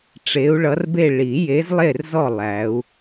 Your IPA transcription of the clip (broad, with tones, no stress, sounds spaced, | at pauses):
ʈ͡ʂ e˨˦ u̯ ɭ ʌ˨˦ r b e˦˨ ɭ i˨˩˦ j e˨˦ z lˠ e˦˨ r z ɔ˦˨ lˠ æ˨˦ u̯